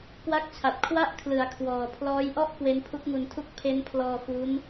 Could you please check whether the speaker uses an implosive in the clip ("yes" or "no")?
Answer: no